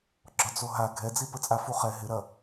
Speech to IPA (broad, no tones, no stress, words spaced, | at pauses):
ɡ͡ǁɒd͡zoɦa ɡʱɛd͡zi pət͡sʼafuχɛ ɦɪɾɐ